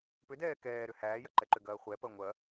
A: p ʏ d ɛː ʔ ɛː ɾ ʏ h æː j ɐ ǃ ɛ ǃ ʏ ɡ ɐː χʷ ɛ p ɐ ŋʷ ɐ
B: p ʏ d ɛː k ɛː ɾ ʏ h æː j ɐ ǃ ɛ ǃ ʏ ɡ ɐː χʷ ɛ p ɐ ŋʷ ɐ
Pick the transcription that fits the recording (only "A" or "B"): B